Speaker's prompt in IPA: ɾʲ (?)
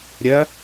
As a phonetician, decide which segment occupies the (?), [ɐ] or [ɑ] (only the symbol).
ɐ